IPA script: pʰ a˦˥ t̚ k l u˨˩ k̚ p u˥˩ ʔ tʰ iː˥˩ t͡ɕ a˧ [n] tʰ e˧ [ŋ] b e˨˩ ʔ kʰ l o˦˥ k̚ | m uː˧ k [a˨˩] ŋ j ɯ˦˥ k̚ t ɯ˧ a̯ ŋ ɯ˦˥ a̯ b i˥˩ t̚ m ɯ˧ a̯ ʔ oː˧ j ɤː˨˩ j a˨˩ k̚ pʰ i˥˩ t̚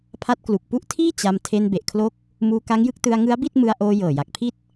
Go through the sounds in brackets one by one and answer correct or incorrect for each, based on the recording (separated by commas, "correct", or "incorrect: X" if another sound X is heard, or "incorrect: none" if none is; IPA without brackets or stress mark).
incorrect: m, incorrect: n, incorrect: a˦˥